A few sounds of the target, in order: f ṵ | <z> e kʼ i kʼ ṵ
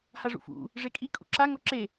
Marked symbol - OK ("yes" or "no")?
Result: no